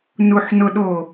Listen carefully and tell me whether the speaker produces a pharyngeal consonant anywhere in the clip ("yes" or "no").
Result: yes